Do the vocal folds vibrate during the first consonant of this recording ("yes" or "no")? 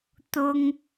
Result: no